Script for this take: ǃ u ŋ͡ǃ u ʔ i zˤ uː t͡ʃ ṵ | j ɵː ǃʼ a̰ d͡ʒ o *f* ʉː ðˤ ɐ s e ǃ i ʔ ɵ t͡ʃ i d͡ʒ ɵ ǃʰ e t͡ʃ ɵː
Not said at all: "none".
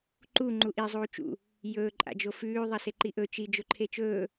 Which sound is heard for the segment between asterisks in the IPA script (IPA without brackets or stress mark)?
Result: f